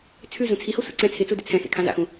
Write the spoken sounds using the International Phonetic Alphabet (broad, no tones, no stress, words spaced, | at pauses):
t͡sʰʉ zũt͡sʰiho sʷɛ̰ǀɛ̃ t͡sʰɪt͡su dɪt͡sʰɛ̃xḛ kʰãza̰xũ